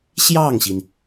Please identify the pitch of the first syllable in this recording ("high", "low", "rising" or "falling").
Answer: falling